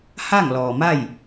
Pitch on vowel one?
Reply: falling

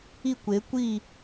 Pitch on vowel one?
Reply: falling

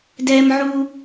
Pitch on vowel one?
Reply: high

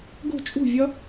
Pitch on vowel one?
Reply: falling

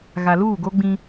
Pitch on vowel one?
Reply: low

